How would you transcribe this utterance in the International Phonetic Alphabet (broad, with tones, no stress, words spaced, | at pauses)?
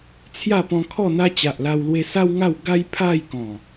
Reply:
t͡sʰja˥˧pɔ̃˧kʰɔ˥˧ n̪a˧t͡ɕa˨ʔ la˧w lwe˧sa˦wŋa˥˧w ɡa˦jpʰa˥˧jkɔ̃˨˩